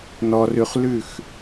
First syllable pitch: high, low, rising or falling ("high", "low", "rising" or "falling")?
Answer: low